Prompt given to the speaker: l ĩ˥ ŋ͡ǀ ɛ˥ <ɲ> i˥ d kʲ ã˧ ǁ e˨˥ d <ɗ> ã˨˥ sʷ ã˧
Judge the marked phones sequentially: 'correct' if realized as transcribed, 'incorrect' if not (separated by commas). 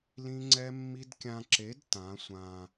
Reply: incorrect, incorrect